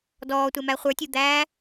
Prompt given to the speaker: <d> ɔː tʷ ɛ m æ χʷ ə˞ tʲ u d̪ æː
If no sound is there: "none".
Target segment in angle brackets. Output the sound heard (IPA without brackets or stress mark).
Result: d